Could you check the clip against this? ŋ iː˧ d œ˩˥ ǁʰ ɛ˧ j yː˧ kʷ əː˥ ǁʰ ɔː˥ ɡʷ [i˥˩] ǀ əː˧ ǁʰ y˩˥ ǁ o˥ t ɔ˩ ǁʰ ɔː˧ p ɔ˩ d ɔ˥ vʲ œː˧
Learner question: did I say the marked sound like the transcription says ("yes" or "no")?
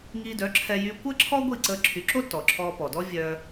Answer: yes